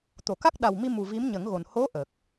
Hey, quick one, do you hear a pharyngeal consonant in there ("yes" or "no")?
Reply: no